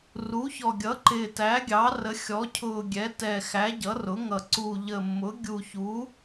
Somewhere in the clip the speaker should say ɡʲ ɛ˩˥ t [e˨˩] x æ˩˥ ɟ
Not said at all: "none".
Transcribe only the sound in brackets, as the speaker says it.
ɛ˨˩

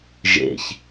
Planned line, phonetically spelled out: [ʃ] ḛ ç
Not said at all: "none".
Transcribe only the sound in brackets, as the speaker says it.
ʒ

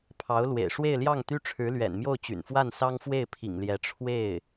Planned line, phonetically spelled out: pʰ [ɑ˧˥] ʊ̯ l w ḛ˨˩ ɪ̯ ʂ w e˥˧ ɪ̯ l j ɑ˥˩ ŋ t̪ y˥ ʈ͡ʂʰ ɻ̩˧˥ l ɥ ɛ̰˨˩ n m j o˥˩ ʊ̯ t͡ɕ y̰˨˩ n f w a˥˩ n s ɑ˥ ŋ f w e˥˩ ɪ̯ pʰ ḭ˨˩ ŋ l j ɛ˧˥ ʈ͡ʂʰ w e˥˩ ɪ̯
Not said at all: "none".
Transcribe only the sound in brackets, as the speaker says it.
ɑ˧˥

